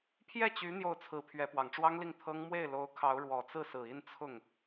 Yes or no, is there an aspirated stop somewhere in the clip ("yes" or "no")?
yes